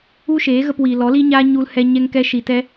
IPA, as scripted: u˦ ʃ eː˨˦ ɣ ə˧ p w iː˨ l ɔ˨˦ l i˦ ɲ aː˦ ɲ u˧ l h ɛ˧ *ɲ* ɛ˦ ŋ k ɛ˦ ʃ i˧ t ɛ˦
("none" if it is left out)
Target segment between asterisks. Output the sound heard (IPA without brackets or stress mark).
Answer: ɲ